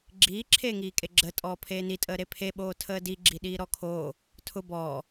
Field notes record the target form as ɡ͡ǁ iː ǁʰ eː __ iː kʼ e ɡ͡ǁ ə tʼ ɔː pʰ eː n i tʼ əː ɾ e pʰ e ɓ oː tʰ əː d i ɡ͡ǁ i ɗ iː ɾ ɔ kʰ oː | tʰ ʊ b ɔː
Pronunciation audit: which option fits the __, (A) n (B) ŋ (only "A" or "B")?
B